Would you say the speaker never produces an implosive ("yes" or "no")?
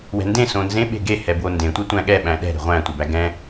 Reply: no